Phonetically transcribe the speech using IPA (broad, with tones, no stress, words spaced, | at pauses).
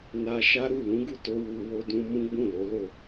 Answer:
na˧ʃa˦ɾu˦˨ lũ˨˦ɡu˦˨to˧ wu˨wo˧dũ˧ mũ˦ɡ͡bũ˦˨lo˨˦lo˦˨